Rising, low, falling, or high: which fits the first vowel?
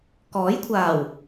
rising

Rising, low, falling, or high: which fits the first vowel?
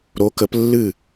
rising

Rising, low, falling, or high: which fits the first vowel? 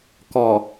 low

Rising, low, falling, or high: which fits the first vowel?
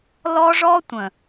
high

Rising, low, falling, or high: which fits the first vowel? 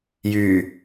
low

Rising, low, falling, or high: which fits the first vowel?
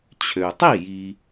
low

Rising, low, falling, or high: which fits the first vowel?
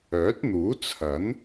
rising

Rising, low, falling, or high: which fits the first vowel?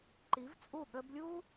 rising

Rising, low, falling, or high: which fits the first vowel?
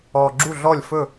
low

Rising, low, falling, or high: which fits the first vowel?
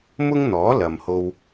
high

